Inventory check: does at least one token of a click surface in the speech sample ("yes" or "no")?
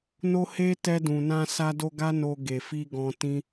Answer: no